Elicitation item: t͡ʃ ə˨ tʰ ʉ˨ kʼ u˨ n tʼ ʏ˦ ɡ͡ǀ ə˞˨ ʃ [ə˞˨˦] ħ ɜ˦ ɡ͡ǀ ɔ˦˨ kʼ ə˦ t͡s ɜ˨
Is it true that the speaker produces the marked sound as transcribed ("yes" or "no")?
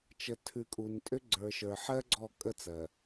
no